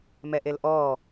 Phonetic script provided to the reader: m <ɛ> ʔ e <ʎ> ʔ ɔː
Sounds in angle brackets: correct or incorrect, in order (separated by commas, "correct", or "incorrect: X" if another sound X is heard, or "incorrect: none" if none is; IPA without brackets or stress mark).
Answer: correct, incorrect: l